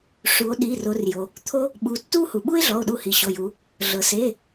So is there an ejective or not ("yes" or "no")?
no